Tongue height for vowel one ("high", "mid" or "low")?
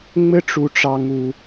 mid